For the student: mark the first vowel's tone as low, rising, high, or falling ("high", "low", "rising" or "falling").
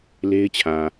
high